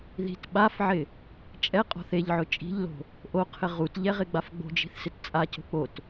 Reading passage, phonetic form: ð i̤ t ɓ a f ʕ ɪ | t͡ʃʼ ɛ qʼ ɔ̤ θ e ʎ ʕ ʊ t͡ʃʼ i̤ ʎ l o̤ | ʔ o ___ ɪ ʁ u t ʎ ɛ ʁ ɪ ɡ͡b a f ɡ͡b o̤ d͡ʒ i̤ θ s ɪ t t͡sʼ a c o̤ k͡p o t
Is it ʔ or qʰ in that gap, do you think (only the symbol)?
qʰ